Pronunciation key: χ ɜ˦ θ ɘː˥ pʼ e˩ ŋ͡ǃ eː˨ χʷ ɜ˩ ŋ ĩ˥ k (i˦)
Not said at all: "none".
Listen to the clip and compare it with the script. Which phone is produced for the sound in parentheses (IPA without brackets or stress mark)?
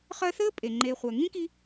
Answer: i˦